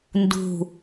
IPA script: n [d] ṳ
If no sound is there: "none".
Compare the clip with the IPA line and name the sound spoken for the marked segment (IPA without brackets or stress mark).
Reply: d